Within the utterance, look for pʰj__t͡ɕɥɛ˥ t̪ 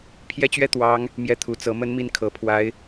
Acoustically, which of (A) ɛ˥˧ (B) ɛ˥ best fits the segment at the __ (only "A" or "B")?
B